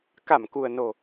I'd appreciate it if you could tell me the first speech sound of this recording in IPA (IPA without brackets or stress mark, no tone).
k